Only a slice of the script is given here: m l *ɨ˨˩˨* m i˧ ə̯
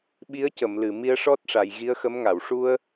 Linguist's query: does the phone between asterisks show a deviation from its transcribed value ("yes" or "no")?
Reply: no